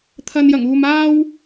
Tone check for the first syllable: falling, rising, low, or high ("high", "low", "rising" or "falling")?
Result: low